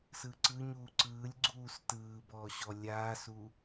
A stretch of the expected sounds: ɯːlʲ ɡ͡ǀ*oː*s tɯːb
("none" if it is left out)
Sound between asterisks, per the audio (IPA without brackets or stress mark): uː